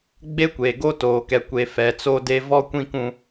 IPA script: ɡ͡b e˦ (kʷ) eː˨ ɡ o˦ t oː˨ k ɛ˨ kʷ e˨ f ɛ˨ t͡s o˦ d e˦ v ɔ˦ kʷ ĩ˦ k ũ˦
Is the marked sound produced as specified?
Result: yes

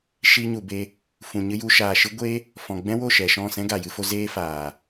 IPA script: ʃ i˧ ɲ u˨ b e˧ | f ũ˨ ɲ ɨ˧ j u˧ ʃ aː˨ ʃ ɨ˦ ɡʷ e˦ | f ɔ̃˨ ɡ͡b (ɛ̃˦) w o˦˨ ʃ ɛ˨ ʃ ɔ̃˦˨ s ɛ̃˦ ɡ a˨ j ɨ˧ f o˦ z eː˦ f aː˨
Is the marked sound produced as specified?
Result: yes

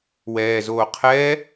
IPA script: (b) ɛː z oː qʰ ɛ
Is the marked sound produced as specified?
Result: no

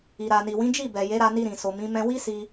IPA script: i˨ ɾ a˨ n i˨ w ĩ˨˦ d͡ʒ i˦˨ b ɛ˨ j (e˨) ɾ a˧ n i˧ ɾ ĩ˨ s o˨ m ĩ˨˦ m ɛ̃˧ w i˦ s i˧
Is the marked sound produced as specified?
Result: no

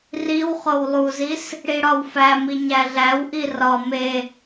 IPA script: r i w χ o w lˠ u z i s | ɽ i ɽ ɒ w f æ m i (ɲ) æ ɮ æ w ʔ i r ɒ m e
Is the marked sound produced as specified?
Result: yes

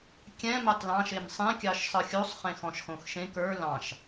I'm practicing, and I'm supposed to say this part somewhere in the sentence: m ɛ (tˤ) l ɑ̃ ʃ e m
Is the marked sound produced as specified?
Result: yes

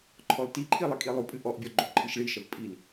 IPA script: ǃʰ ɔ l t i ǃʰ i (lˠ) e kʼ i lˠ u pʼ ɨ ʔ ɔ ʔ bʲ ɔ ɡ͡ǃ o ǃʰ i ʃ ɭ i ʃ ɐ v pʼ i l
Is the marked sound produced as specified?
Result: yes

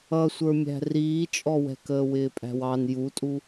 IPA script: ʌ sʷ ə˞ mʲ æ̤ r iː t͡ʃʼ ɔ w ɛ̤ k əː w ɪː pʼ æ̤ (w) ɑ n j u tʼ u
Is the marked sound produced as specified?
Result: yes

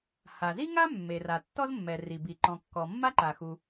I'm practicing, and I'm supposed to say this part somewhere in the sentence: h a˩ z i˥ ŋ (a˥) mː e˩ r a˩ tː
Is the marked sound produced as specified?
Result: yes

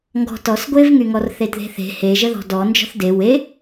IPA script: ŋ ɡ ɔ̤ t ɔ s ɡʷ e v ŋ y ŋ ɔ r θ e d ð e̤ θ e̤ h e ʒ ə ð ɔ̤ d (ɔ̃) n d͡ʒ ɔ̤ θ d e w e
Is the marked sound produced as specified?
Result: no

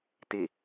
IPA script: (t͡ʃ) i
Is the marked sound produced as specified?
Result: no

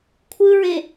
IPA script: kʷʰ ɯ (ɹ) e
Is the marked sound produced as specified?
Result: yes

